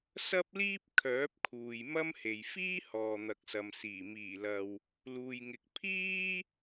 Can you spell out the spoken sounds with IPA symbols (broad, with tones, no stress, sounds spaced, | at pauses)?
s ɐ˥ p̚ l iː˥ p̚ kʰ œː˨˥ p̚ kʰ uː˨ j m ɐ˥ m h e˨ j f iː˥ h ɔː˨ n̪ ɐ˨ k̚ s ɐ˨ m s iː˨˩ m iː˨˩ l ɐ˨ w | l uː˨ j ŋ ɪ˨ k̚ pʰ iː˥